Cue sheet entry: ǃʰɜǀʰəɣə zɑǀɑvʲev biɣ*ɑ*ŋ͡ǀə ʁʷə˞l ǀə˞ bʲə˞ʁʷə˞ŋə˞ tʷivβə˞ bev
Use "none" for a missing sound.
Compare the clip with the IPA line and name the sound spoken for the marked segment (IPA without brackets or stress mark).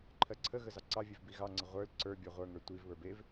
ɑ